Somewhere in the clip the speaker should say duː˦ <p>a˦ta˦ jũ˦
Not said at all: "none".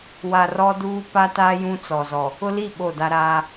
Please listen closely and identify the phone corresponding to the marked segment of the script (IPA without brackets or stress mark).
p